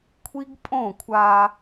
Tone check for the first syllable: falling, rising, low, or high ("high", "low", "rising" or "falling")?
high